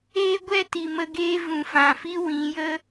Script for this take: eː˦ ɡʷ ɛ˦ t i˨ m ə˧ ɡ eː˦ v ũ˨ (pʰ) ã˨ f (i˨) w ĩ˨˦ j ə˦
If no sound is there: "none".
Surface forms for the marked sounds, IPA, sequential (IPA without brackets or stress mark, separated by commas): f, i˦